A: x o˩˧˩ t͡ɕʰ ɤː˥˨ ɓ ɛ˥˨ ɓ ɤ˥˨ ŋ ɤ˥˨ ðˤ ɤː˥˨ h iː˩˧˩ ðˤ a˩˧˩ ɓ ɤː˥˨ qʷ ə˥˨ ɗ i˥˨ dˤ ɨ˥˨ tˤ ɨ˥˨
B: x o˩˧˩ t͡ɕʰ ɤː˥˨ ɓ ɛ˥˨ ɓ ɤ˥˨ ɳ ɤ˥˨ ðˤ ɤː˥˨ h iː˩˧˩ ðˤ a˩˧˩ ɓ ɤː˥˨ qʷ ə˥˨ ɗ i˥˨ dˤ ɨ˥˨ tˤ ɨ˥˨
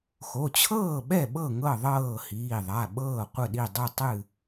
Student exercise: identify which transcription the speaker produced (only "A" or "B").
A